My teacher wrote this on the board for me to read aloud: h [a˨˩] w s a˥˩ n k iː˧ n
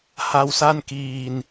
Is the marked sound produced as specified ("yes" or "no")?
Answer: no